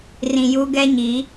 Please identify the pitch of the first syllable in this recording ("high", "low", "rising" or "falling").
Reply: low